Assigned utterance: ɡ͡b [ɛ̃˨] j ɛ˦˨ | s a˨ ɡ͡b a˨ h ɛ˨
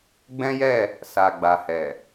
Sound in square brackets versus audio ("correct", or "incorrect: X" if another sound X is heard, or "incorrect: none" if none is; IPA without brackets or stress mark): incorrect: ɛ̃˦